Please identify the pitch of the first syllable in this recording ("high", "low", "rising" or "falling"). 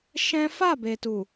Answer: high